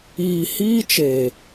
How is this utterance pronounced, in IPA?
iː˧ hiː˦t͡ʃeː˨

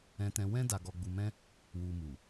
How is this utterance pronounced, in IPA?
ɛ̃˦tɛ̃˦ wɛ̃˦ da˧ɡɔ˧ɡ͡bu˧mɛ̃˦ | wu˧mu˨

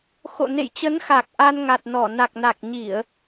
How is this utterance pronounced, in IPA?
xo̰˧˨nḛ˧˨jt͡ɕə˨˦nxa˨˩k̚ ʔa˧nŋa˨˩t̚ nɔ˧˩ na˨˩k̚na˨˩k̚ɲi˧˩˨ə̯

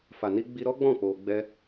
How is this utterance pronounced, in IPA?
fa˨ni˧ ɡ͡bi˧ɾɔ˦ɡ͡bɔ̃˦˨ k͡po˧ɡ͡bɛ˦

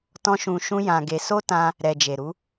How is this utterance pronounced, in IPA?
tɔ̃˧ʃũ˨ʃũ˧ jã˧ɡe˧ so˦tã˧ | ɾɛ˨d͡ʒe˨ɾu˨˦

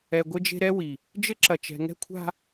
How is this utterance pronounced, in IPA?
ɛ˨ ɡʷɘ˦d͡ʒe̤˦ ɾɛ˦wi˨ | d͡ʒɘ˦ǁɐ˨ t͡ʃɛ̤˨ŋɛ̤˦kʷʰa̤˦

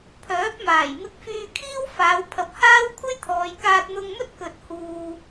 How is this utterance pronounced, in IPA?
pʰœː˨˥p̚maː˨˩j mɪ˧k̚fyː˧kʰiː˥w faː˨˧w pʰɐ˨p̚haː˥wkʷʰɐ˥jt̪ʰɔː˨j kaː˧t̚n̪ʊ˧ŋmɵ˥t̚ kɵ˨t̚ huː˧

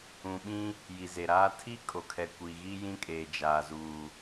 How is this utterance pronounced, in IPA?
ũ˨ɓĩ˦ | ji˨ze˨ɾaː˦ tʰi˦ kʼo˨kʰɛ˨ kʷi˨ɣi˦jĩ˦kʼeː˨ d͡ʒaː˨zuː˨

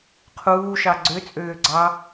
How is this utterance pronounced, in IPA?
qʰuːʃɑ ɡ͡ǀøt͡sʼøː ɡ͡ǀɑ

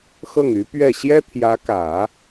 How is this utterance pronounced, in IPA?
xɤ˥˩ŋy˧˥pɥɛ˥˩ ɕjɛ˥t̪ʰjä˧˥kä˨˩˦

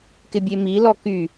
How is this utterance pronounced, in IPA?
kɪbʲemilɔ ky

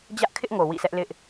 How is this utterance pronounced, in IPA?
d͡ʑä˦ʔkʰɪ˦ʔ ŋo˨wḭ˦˨sɛ˦ʔ lɪ˦ʔ

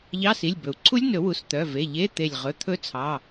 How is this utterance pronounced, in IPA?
ʎɑ˧˥˧si˩˧˩lʲ bɵ˩u̯ ǀʰu˦˥lʲnɵ˨˩˦wu˩˧˩s t̪œ˩˧˩ve˩˧˩ʎe˧˥˧ t̪e˧˩lʲ ʁɵ˩˧˩ t̪ʰɵ˦˥t͡sʰɑ˩˧˩

